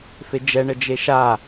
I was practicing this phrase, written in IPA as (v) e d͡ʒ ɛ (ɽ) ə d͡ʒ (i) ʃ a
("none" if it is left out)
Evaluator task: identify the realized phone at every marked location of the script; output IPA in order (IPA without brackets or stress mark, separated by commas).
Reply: f, ɳ, e